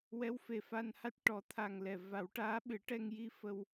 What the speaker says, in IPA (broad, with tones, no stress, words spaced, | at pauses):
wɛ˧˥wfe˨˩fa˧nha˦˥t̚ ʈɔ˨˩˦t̪ʰa˨˩ŋlɛ˨˩ va˨˩˦wʈaː˧˥ ɓɨ˨˩˦ʈɛ˧ŋji˧ fə˧w